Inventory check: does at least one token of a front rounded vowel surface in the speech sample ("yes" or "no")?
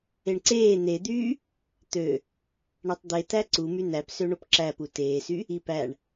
yes